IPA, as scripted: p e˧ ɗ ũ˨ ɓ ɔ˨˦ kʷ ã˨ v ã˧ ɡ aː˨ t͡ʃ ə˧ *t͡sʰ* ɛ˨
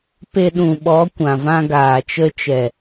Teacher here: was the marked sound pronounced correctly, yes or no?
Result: no